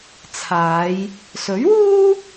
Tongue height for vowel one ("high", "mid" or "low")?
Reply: low